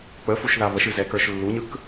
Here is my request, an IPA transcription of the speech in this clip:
k͡p ə f u ʃ ð a β ə ʃ ɨ z ɛ k ə˞ ʃ lː u ɲ ɯ k

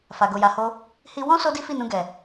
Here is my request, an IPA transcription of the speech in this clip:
f a˨ ɡ o˨ j a˨ h o˧ | h i˦ w ɔ̃˦ s o˦ d i˦ f i˦˨ n ũ˧ ɡ ɛ˨

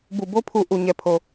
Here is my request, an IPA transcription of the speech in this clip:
b u˨ b o˦ pʰ u˨ ʔ u˨ ɲ ɛ˨ pʰ o˨

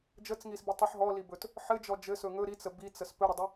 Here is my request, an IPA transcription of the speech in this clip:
d͡ʒ ə t͡s ŋ i s b i tˤ ɘ ħ ɦ ɔ l i b ɵ t | ħ ɘ d͡ʒ ɔ d͡ʒ ɘ s ɵ ŋ ɵ ɾ i t͡s ə b i t͡s ə s p ɵ ɾ ə dˤ ə

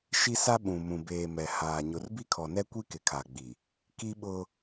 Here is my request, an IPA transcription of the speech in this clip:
ʃ i˦ s a˦ ɓ ũ˨ m ũ˨ b eː˨ m ɛ˨ h aː˨ ɲ ʊ˨ r b i˦ kʰ ɔ˨ n ɛ˦ kʷ i˦ k ɪ˨ kʰ a˨ ɡ͡b i˨ | k i˦ ɓ ʊ˦

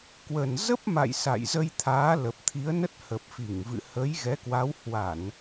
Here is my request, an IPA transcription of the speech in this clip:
k w ə˨˩ n z ə˦˥ p̚ m a̰˧˨ j s a̰˧˨ j z ə˧ j t̪ʰ aː˨˦ l ə˨˩ p̚ t̪ʰ i˨˦ ə̯ n ə˦˥ t̚ h ə˨˩ p̚ f i˧˩ ŋ v ɨ̰˧˨ h ə˨˦ j ɣ ɛ˨˦ k w a˨˦ w h w a˧˩˨ n

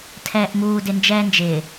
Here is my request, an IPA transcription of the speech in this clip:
tʰ ɛː ʔ m uː d ɪ n d͡ʒ ɛː n d͡ʒ ɪː

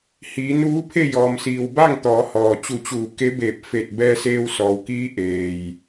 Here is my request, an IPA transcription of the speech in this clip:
h iː˩˧ n uː˧˥ pʰ e˥˨ j ɔː˩ m s iː˩ w b a˥˨ ŋ t̪ ɔː˩˧ h ɔː˩ t͡ɕ u˧˩ t͡ɕ uː˧˩ k e˧˥ b eː˧˩ p̚ f eː˧˩ t̚ b ɛː˧ s eː˧ w s ɔː˩ w k iː˧˥ ʔ eː˩ j

